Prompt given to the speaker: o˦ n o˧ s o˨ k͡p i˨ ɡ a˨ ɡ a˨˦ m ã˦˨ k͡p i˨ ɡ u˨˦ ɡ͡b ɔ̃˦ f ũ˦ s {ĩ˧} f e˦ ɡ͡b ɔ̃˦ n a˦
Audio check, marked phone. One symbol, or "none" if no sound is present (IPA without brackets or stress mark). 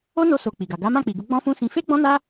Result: ĩ˧